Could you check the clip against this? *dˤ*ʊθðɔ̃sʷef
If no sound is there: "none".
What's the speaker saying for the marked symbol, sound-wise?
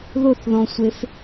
ð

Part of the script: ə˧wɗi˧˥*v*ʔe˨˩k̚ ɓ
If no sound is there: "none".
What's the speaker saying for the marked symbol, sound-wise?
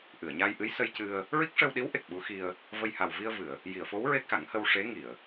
w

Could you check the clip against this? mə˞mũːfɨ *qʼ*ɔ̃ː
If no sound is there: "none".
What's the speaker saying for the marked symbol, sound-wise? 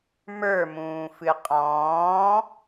qʼ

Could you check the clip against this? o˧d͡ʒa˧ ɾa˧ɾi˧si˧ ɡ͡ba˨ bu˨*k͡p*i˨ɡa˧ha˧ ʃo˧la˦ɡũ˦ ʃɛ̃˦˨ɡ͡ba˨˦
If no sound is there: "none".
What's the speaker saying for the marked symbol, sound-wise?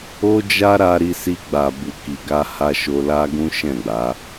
k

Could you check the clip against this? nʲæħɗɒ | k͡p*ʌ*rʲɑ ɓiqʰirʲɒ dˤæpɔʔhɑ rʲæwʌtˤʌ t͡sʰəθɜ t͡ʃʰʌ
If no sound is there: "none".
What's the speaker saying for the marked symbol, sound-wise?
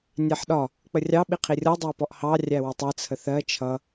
ə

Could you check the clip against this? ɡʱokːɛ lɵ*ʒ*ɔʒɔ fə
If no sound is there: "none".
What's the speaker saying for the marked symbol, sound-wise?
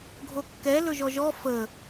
ʒ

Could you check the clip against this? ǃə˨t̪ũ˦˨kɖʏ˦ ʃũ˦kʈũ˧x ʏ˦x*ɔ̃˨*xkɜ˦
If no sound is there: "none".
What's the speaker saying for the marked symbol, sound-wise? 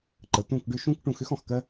ɔ̃˨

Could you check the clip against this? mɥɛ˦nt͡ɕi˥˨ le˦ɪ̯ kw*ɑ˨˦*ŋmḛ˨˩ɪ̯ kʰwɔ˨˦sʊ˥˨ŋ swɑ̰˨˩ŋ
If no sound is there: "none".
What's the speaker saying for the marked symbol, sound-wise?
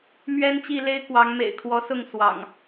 ɑ˨˦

